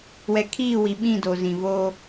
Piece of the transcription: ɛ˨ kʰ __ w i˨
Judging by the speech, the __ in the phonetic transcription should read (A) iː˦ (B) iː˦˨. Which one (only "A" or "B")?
B